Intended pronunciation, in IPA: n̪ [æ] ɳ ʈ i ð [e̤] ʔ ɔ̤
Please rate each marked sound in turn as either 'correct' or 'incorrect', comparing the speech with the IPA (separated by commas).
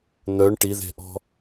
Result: incorrect, correct